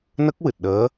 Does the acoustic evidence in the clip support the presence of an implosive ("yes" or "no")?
yes